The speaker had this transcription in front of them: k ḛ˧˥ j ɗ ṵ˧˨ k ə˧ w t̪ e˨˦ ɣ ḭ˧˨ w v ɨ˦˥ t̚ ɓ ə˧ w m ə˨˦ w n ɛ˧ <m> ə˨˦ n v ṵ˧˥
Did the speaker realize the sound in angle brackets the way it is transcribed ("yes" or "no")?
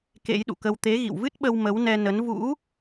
no